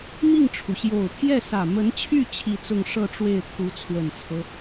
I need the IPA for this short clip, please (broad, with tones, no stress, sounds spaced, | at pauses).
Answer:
m i˥˩ ŋ ʈ͡ʂʰ u˩ ɕ j o˨˩ ʊ̯ pʰ j ɛ˥˩ s ä˨˩ m ə˧˥ n t͡ɕʰ y˥˧ t͡ɕʰ i˥˧ t͡s ʊ˥˧ ŋ ʂ ɤ˥˧ ʈ͡ʂ w e˥˩ ɪ̯ t̪ʰ u˧˥ t͡sʰ w ə˨˩ n t͡sʰ ɤ˦